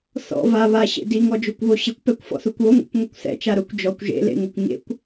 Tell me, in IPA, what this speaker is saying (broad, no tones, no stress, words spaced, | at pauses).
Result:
θɔ̰ va βaɕḛ diŋɔd͡ʒokʷβo ɕɪkʷpɛkʷfɔ̰θukʷ oŋʷɛ̰kʷŋʷikʷ θɛ̰t͡ʃa ɾʊkʷ d͡ʒɔkʷ ʒḛlḛŋokʷ ɲḛkʷ